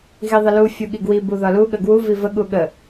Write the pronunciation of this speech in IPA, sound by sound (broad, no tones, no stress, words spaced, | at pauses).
ɣiðˤəlu fʲuɠiɡwi buðɒlu ɠəɡwu vivə ɠuɠə